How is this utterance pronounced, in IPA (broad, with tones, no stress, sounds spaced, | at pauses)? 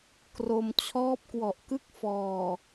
k r o˧ m t͡ɕʰ ɔː˦˥ p̚ k w ɔ˨˩ ʔ k ɯ˦˥ k̚ f ɔː˨˩